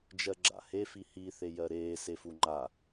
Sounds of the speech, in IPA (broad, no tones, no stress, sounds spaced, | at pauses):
d͡ʒ ɜ ɡ͡ǁ a̰ h e f i h i θ e j ɜ ɾ eː s e f u ŋ͡ǃ a